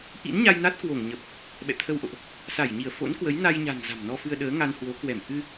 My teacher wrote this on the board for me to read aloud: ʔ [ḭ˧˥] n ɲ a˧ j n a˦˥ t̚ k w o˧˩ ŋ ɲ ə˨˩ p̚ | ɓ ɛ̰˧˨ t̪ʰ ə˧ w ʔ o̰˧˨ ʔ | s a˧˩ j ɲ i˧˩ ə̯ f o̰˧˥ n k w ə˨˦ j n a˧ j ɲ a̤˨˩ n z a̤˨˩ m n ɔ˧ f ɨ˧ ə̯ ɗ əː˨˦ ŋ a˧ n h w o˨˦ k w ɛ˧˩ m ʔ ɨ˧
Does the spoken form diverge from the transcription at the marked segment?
no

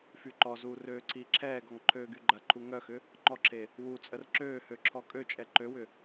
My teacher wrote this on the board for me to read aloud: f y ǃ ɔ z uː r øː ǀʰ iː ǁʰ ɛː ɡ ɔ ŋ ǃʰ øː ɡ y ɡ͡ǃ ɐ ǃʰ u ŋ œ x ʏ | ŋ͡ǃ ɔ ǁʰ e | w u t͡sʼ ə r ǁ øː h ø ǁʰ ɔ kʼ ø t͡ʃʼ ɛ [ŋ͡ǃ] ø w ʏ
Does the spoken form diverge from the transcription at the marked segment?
yes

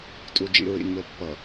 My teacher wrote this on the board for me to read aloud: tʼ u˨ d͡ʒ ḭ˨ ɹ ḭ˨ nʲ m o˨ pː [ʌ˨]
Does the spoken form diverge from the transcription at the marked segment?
no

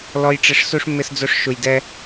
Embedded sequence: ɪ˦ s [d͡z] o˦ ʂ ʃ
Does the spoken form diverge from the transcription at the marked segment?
no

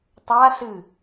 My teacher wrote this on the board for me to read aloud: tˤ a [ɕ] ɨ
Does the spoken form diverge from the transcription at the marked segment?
yes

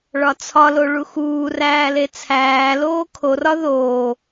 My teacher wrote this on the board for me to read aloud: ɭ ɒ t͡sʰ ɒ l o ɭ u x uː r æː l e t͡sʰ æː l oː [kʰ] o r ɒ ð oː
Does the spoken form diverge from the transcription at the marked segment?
no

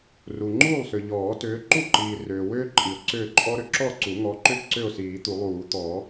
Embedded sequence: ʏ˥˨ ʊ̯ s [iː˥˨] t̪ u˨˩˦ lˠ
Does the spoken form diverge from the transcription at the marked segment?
yes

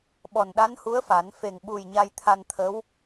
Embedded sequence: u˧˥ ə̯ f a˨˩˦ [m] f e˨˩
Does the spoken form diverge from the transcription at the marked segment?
yes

